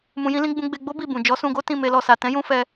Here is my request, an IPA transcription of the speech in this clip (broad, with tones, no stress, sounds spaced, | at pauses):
m ũ˧ j ĩ˦ l ĩ˦ ɡ͡b ũ˧ ɡ͡b e˧ ɡ͡b o˦ b i˦˨ b ũ˨ d͡ʒ ɔ˨˦ s ũ˧ ɡ o˦ t ĩ˦˨ m e˧ l ɔ˨ s a˨ t ɛ̃˨˦ j ũ˧ f ɛ˧